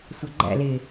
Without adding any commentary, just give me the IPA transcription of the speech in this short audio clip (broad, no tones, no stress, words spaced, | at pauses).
sʷɑɡ͡ǃæ̰ lɪ